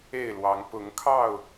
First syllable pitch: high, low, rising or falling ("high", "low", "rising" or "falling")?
falling